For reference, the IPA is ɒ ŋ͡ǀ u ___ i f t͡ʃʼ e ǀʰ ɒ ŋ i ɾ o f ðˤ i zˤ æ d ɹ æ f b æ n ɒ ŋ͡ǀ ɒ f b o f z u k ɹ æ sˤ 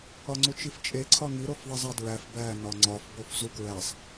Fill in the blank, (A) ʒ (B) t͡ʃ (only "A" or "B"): B